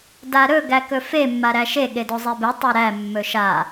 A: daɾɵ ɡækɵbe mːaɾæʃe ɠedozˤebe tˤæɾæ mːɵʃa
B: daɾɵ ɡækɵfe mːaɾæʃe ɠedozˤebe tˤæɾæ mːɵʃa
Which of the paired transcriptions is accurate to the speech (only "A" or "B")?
B